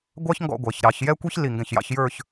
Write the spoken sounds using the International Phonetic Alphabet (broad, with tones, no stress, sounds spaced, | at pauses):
ɡʷ ɑ˥ ç ŋ ɡ ɔ̰˥˧ ɡʷ æ˩˧ ç ɾ ɑ˩˧ ç j ɛ˥ kʷ i˥ ç l i˧˩ ŋ ɡ ɛ̃˧˩ ç j ɑ̰˥˧ ç j ə˞˥˧ ç